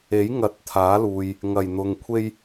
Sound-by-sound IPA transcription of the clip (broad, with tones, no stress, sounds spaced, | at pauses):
e˨˥ j ŋ ɐ˨˥ t̚ t̪ʰ aː˨˥ l uː˨ j | ŋ ɐ˨˩ j n̪ ʊ˨ ŋ kʷʰ e˥ j